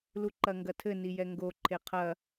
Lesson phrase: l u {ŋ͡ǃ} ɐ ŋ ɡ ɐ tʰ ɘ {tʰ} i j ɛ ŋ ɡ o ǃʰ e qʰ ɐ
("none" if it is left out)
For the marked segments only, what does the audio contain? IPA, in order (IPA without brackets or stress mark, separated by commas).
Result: ǃ, n